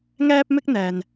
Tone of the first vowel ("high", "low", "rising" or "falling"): high